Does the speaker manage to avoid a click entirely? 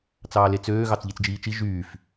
yes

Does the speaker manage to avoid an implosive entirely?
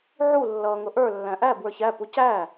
yes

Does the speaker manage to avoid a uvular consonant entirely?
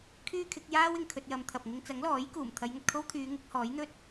yes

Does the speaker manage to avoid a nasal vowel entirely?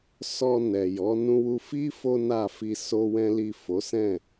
no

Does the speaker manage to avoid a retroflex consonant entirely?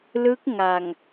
yes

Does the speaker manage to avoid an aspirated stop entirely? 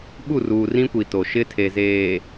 no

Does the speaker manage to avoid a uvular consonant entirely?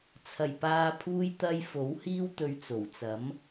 yes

